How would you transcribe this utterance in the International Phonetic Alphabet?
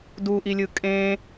duʔilʲɯ kʼẽ

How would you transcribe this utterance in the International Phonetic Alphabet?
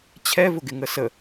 t͡ɕʰɛvʊɡɪŋə sə

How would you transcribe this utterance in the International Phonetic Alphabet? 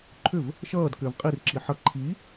ǃʰʏv | ʃʌːdkʏːv qʼirǁi ħʌ ǃʰi

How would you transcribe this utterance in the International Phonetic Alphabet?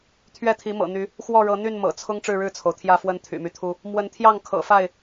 t̪ʰɥɛ˥˨t̪ʰi˨˦mɤ̰˨˩n̪y˨˦ | xwɔ˥˨ɻɤ˨˦n̪y˥˨n mɤ̰˨˩t͡sʰʊ˦ŋ ʈ͡ʂɻ̩˥˨ɻɻ̩˥˨t͡sʰo˩ʊ̯t̪ʰjä˥˨ fwə˦nt̪ʰy̰˨˩my˦t̪ʰu˦ | mwə˨˦nt̪ʰjɑ˥˨ŋ kʰɤ̰˨˩fa˥˨ɪ̯

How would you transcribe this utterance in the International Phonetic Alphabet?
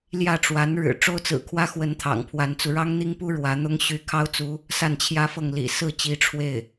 ljä˥˩ʈ͡ʂwa˧˥n ɻɻ̩˨˩ ʈ͡ʂo˥ʊ̯t͡sɹ̩˨˩kʰwä˥xwə˧˥n t̪ʰɑ̰˨˩ŋpʰwa˧˥nt͡su˧ ɻɑ˥ŋn̪i˥ŋpu˥ ɻwä˧˥n̪ʊ˥ŋ ɕy˧˥kʰɑ˥ʊ̯t͡su˧˥ | sa˥˩nt͡ɕʰjä˥fɤ˥˩ŋlḭ˨˩ sɹ̩˥˩t͡ɕi˧˥ ʈ͡ʂʰwe˥˩ɪ̯

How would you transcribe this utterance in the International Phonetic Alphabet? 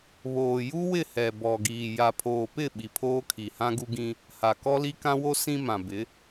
βoː˨ ju˦wɪ˦˨ hɛ˨bɔ˨ɡiː˨ ja˨pʰoː˨pɪ˦˨ ɓi˨pʰoː˦kʰi˨hã˦ ɡu˦ɡĩ˦ | ha˨kɔ˦li˦ kã˦wo˦ sĩ˦mã˨bɪ˨˦

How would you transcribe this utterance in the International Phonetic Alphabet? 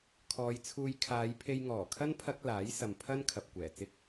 kʰɔː˨˧jt͡sʰuː˧j kʰaː˨˧j pʰe˧jŋɔː˨˩kʰɐ˥n pʰɐ˥k̚ laː˨˥jsɐ˨m pʰɐ˥n kʰɐ˨p̚kʷɛː˨˩ t͡sɪ˥k̚

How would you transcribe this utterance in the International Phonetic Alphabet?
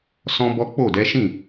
sɔ̃˦bɔ˦ k͡po˦˨dɛ˨˦ʃĩ˦˨

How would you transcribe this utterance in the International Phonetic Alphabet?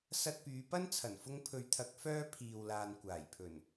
sɐ˧t̚pyː˨˧pɐ˥nt͡sʰɐ˨˩n fʊ˧ŋpʰɵ˨ɥt̪ʰɐ˨˥k̚ fœː˥pʰiː˨wlaː˨n kʷaː˨˩jpʰɵ˨˩n

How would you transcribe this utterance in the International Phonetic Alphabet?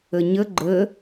əɲə ɡ͡ǃə

